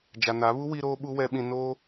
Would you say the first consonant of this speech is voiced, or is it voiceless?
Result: voiced